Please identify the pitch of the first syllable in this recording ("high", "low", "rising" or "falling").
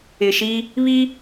low